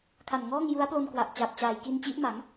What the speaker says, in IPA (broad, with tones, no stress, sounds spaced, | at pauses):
kʰ a˨˩ n ŋ ɔː˥˩ ŋ j u˦˥ a̯ p l o˧ n k w a˨˩ ʔ t͡ɕ a˨˩ p̚ t͡ɕ aː˨˩ j k i˧ n t͡ɕ i˦˥ ʔ m a˩˦ ŋ